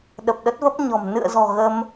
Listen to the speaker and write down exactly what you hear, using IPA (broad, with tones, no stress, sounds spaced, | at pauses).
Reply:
ɗ ə˨˩ p̚ ɗ ə˦˥ t̚ v ə˦˥ p̚ ɲ ɔ̤˨˩ m n ɨ̰˧˨ ə̯ z ɔ̤˨˩ ɣ ə˧ m